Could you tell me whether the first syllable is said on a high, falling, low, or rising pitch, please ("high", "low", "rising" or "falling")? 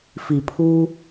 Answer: low